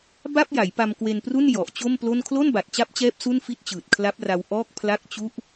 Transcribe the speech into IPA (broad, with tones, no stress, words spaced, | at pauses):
ba˥˩p̚ ja˩˦jpa˧mkwe˧npru˥˩n jɔ˨˩ʔt͡ɕo˥˩mplo˥˩n kʰlo˥˩nba˨˩t̚t͡ɕa˦˥p̚t͡ɕɛː˦˥p̚ su˥˩nfi˥˩t̚t͡ɕɯː˨˩t̚ kʰla˦˥p̚ra˧w ʔɔː˥˩k̚ pʰla˥˩k̚t͡ɕu˥˩ʔ